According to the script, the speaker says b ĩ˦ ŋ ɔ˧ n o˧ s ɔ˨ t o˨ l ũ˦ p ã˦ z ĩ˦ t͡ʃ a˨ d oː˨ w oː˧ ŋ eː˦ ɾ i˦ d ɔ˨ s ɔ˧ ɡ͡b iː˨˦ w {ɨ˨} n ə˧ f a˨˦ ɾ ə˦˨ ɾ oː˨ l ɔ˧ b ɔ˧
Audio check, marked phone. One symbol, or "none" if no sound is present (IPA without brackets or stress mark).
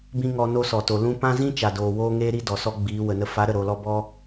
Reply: ə˨